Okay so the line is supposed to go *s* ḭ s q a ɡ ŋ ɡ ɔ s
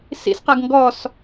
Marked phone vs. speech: correct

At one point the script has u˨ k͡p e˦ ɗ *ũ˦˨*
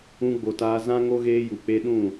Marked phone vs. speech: correct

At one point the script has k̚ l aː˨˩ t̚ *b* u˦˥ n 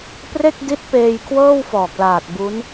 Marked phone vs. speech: correct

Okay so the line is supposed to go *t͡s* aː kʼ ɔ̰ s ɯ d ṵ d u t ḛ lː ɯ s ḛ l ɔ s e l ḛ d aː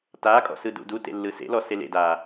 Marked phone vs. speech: incorrect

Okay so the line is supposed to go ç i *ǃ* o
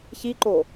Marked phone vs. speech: correct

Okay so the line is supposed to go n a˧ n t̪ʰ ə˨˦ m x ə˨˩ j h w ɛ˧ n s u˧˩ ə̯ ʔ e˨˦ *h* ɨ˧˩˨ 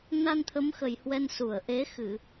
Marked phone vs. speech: incorrect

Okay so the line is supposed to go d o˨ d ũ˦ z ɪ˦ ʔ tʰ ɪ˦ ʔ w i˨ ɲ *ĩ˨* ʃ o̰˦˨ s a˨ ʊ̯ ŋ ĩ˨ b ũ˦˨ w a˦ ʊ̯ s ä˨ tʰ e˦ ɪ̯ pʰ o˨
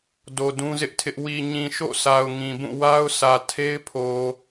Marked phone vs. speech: correct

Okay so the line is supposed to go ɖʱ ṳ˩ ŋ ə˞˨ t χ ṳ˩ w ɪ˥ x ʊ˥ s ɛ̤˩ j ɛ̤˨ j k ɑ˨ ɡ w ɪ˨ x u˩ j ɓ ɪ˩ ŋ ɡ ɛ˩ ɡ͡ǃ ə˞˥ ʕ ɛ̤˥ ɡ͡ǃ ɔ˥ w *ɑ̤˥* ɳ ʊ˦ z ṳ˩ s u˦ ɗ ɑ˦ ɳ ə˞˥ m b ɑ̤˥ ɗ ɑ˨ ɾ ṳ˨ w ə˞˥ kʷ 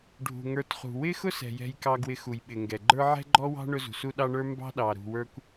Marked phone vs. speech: correct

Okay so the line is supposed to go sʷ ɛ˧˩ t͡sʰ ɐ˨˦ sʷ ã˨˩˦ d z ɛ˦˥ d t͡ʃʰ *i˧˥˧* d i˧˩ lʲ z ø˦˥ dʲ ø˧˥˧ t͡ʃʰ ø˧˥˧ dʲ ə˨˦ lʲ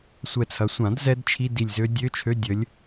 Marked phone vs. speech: correct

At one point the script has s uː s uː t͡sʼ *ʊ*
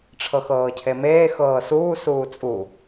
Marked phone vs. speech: incorrect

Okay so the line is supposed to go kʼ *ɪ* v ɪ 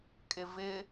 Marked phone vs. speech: correct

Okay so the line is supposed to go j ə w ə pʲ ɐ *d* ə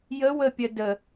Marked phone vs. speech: correct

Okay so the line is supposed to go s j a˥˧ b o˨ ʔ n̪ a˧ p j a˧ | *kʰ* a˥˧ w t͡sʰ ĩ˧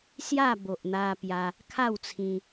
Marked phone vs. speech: correct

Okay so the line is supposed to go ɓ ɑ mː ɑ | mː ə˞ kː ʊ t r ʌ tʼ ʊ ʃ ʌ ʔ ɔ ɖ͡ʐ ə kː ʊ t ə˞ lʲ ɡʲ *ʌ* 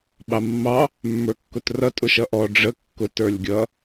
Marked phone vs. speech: correct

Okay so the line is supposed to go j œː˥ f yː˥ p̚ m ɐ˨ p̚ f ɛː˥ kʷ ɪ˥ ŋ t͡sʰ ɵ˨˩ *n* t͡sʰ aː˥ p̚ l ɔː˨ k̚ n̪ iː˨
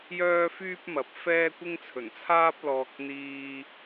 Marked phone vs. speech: correct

